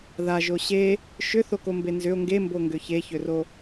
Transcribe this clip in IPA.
ð a ʒ o ɕ e | ʃ ʏ θ o k o m b e n z ʏ o̯ ŋ ɡ e m b o ŋ ɡ ʏ ç e ç ʏ r o

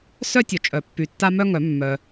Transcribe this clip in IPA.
s œ˥ tʲ o˨ t͡ʃʼ œ˨˩˦ pː y˨ tː a˥ m œ˥ ŋ œ˨˩˦ mː œ˨

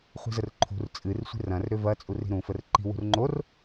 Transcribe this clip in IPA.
χʷ i̤ z ə r ǃʰ ṳ r t͡sʼ ɨ r sʷ i̤ r ɐ̃ r ɾ ʏ v ɐ t͡sʼ u r i̤ ɾ ũ f ə r ǃ i̤ w ṳ r ŋ͡ǃ o r

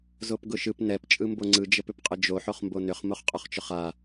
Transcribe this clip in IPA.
z o p ɡ ʊ ʃ ɯ p n ɛ p t͡ʃʼ ɯ m b o ŋ͡ǀ ɯ d͡ʒ ə p ʏ p qʼ ə d͡ʒ o ħ o χ m b o n ʏ χ m o χ qʼ ɵ χ t͡ʃ ʊ χ a

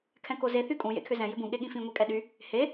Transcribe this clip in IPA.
kʰ ɛ̃ k o z e θ y kʼ ũ j ḛ kʰ ʏ z ɛ̃ j ʏ b ũ ɠ e ɠ ĩ f ĩ ŋʷ e kʼ ɛ ɗ y | h e

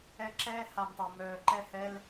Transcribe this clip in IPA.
ɛ˦ ǁ ɛː˦ h a˨ m tˤ ɛ˨ m œː˨ ǃ ɛ˦˨ h ɛ˦ l

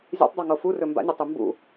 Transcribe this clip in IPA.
zʲ ɛ̰ tˤ dˤ o ŋ o f u r ɵ m b a̰ nʲ ɔ tˤ u m b ṵ

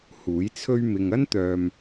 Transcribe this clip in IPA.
h uː˨˥ j t͡sʰ ɵ˥ ɥ m ɪ˧ ŋ ɐ˥ n t̪ œː˨ m

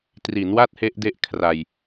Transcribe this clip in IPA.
t r i˩˦ n w a˥˩ t̚ h e˦˥ ʔ d e˦˥ ʔ kʰ r a˧ j

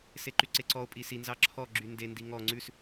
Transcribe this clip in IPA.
s e ǃ y ǀ e ǀ ɔ o̯ pʼ i s i n z ɑ ǁʰ ɔ ɡ͡ǁ y n d e n d i ŋ ɔ ŋ͡ǀ ʉ s

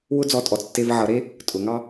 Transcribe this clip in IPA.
w ʊ˥ d͡z ɔ˧ tʼ ɔ˩˧ t͡s tː e˧ v ʕ ʌ˩˧ ɾ e˥ | tʼ ʊ˩˧ ŋ ɑ˥

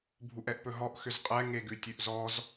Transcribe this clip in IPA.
bʱ u ʔ ɛ ʔ p ɵ ɦ ɔ ʔ x ʏ z qʼ ɛ ŋ e ɡ ʉ tʲ ʉ ʔ z ɔ z

